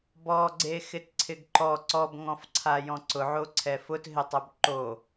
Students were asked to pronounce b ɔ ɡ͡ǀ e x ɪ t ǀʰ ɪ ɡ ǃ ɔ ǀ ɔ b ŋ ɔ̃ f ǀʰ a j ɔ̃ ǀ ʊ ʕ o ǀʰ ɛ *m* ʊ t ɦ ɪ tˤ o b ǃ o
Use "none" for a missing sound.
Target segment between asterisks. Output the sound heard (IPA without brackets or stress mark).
f